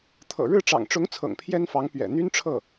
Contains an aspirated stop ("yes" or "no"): yes